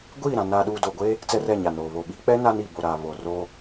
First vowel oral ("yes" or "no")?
yes